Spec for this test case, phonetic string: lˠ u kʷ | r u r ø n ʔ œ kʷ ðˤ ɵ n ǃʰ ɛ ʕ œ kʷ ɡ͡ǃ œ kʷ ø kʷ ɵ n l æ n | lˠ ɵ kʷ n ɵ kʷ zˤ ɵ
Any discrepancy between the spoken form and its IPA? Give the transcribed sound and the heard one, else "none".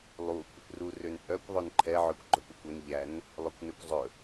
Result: l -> ʎ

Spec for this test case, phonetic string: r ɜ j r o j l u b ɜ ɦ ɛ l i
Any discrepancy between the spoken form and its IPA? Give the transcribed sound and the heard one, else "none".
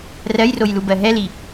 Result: none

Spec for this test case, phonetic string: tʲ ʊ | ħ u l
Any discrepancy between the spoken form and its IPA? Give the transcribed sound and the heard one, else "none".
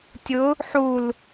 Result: none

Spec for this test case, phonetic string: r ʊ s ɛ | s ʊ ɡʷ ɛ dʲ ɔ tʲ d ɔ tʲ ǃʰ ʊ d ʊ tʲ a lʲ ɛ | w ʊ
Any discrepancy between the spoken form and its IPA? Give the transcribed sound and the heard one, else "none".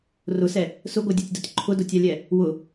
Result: none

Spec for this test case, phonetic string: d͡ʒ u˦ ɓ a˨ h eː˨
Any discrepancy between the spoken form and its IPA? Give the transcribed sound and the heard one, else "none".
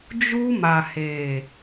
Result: ɓ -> m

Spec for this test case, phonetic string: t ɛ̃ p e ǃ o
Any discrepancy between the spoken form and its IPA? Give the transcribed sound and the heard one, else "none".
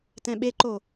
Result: p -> ɓ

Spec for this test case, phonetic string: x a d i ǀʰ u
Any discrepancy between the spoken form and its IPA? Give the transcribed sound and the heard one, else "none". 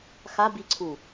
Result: d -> b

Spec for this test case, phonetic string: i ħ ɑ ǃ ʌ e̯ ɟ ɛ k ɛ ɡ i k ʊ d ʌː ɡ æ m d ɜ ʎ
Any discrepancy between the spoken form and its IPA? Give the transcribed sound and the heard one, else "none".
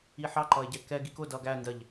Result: m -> n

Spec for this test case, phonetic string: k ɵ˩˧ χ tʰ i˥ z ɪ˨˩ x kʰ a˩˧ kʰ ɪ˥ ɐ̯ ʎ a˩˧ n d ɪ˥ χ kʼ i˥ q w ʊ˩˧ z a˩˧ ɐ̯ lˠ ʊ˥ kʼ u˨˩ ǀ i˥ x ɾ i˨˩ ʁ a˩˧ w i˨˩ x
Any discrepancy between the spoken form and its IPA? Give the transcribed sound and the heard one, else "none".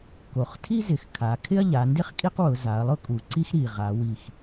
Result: ɵ˩˧ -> o˩˧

